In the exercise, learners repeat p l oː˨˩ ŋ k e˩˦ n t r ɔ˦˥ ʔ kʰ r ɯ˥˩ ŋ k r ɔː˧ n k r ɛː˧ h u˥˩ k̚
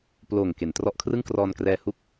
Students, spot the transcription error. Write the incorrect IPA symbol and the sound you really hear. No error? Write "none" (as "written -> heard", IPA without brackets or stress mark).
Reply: none